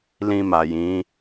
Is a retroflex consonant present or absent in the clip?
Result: absent